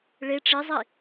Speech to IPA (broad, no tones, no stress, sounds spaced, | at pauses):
ɭ e ʈ͡ʂ i zˤ i